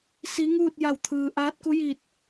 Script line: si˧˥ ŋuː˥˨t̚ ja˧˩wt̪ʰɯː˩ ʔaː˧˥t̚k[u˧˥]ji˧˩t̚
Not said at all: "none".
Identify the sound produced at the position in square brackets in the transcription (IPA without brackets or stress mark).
u˧˥